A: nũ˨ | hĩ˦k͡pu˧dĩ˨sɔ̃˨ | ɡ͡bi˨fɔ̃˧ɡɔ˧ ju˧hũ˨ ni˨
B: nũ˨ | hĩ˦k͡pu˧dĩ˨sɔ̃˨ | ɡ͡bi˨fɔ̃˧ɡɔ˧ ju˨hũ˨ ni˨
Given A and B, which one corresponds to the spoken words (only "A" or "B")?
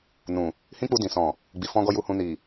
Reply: B